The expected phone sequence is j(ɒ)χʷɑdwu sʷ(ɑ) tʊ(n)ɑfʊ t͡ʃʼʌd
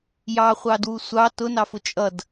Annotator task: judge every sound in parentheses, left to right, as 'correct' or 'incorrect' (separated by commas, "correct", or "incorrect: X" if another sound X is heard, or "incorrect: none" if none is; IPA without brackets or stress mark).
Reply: incorrect: ɑ, correct, correct